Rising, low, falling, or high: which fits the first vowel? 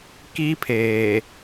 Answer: high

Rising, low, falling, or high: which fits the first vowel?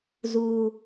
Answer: high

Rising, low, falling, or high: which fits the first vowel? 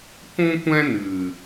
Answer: high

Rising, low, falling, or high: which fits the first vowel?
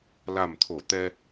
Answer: low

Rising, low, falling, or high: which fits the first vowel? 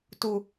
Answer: low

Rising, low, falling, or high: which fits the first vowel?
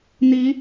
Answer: rising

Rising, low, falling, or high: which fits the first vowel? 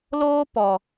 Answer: high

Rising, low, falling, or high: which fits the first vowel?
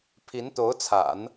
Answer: rising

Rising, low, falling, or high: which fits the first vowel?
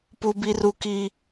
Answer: high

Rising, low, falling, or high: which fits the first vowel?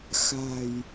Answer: low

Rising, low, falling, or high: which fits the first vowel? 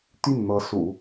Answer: falling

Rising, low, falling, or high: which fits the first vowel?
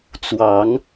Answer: low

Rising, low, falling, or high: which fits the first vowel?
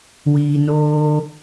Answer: low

